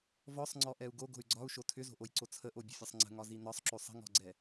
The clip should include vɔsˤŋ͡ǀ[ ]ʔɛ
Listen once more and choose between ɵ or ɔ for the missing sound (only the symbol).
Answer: ɔ